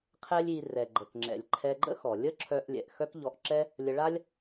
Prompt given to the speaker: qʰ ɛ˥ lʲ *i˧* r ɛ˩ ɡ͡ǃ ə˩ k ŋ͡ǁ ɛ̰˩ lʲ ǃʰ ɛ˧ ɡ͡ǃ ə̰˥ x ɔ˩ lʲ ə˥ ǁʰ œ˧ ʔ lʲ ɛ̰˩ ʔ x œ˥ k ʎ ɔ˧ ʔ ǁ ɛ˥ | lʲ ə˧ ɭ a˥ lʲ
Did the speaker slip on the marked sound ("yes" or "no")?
no